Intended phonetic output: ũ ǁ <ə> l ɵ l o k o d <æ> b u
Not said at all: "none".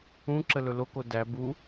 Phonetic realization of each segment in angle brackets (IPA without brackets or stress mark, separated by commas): ə, æ